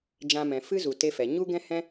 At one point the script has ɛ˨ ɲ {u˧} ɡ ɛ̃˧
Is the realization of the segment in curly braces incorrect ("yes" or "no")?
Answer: no